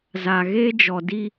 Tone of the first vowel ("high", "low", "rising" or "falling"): low